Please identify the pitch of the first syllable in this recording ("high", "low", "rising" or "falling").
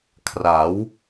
rising